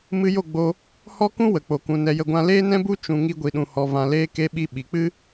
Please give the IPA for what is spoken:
mɨ˧ jo˦˨ ɡ͡bo˧ | hɔ˦kũ˦wə˨ k͡po˨kũ˨ nɛ˨jə˨ɡʷã˧ leː˦nɛ̃˦bu˦ t͡ʃũ˨ ŋi˧ɡʷi˨ɗũ˨hɔ˨ vã˨leː˧ ke˧ɓi˧ ɓi˨k͡pɨ˦

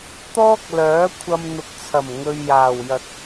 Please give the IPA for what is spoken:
t̪ɔː˥k̚lœː˨˥kʷʰɐ˧m n̪ʊ˨k̚t͡sʰɐ˨˩m ŋɵ˧ɥjaː˨˩w jɐ˨t̚

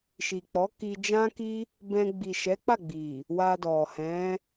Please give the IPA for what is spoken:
ʃi˨k͡pɔ˨˦ ki˧d͡ʒã˦ki˦ | bɛ̃˧ ɡ͡bi˨ʃɛ˨˦k͡pa˦˨ ɡ͡bi˨ | wa˧dɔ˨ hɛ̃˨˦

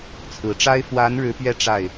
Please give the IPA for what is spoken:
t͡sʰɹ̩˨˩ʈ͡ʂa˥ɪ̯ fwa˧˥n ɻɻ̩˧˥pɥɛ˥˧ ʈ͡ʂa˥˩ɪ̯

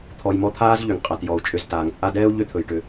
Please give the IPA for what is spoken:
t̪ʰɔ˨jmɔ˦t̪ʰaː˥z ʎʏ˩ŋqʼa˩tjɔ˩u̯ t͡ʃʼʏ˨ztaː˩ŋt͡sʼa˦dɛː˥u̯ ʎʏ˥t̪ʰɵ˩jʈʏ˨

